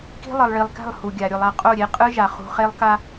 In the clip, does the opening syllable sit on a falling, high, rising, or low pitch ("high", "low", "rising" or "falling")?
high